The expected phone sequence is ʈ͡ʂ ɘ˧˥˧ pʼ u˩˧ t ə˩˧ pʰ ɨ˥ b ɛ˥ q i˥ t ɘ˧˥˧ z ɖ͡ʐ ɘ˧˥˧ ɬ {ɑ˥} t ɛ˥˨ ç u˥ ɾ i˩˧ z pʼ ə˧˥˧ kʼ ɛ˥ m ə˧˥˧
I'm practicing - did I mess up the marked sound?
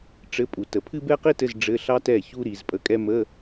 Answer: no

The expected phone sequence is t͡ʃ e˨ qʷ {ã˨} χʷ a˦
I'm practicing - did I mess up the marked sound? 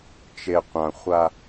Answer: no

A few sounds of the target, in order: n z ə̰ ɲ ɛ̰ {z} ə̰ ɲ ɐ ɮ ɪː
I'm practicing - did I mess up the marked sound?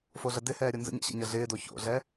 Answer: yes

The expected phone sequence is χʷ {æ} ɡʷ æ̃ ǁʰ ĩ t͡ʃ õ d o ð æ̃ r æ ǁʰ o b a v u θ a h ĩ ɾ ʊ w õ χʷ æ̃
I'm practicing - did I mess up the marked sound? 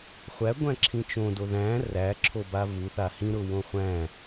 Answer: no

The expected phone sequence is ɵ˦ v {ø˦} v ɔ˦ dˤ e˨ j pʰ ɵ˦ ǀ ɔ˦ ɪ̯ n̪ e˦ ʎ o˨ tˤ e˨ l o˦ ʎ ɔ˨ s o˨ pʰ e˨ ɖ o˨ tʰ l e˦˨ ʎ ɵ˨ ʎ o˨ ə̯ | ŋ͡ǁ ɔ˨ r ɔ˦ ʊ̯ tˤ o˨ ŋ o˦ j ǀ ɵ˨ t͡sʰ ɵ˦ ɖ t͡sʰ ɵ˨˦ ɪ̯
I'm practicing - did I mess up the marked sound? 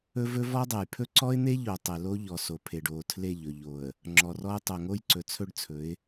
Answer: yes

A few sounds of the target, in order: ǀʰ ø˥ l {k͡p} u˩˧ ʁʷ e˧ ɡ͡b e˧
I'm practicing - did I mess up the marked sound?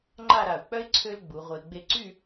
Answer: yes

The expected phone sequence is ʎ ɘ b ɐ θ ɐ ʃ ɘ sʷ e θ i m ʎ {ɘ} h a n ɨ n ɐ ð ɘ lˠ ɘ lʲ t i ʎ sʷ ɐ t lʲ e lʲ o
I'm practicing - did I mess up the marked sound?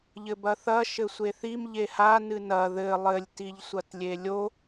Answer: yes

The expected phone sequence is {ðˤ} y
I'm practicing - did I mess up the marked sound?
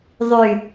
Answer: no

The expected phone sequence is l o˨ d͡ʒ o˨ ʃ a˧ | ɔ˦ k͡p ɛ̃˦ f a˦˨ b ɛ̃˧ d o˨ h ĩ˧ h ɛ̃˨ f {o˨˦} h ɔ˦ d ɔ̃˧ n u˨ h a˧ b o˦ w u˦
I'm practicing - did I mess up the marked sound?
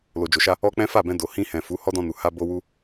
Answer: yes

